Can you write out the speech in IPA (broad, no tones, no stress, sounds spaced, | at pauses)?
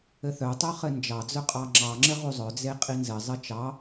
ɘ θ œ tˤ œ χ ɘ n d͡ʒ ɑ d͡z œ qʼ ɑ ŋ͡ǁ ɑ ŋ͡ǁ ɘ ʁ u zˤ œ d͡z e qʼ i n z ɘ zˤ ɘ t͡ʃ ɑ